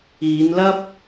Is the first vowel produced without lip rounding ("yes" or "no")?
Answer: yes